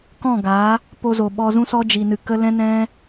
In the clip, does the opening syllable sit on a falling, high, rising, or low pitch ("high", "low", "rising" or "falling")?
falling